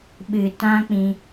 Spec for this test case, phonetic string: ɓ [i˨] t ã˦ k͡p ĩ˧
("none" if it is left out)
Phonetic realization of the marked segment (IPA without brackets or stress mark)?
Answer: ɨ˨